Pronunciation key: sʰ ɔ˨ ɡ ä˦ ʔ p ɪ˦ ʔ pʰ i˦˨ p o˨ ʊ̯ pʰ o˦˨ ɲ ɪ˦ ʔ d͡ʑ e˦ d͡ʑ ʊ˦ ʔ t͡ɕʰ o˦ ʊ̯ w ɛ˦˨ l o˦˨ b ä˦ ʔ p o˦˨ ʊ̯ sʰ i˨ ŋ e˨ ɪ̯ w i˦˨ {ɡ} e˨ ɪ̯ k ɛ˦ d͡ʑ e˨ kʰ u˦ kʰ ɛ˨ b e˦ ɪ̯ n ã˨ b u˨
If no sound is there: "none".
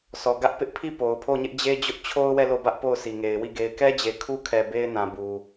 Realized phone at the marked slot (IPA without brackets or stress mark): ɡ